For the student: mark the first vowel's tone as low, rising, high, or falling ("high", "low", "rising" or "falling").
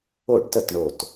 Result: falling